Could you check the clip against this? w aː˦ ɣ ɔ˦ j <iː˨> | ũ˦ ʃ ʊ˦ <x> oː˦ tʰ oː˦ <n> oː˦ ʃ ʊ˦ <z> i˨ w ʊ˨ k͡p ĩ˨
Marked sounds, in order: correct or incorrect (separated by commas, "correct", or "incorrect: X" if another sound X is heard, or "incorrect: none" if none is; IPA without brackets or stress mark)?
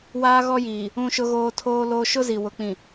correct, incorrect: ɣ, incorrect: l, correct